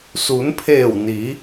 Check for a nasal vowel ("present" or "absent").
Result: absent